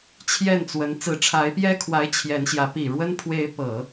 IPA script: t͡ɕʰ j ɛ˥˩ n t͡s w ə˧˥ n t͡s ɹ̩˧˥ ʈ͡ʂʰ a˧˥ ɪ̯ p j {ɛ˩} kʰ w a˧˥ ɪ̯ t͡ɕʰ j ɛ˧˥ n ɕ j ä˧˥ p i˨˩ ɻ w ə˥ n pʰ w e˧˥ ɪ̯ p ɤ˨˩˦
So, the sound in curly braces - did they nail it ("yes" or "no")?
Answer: no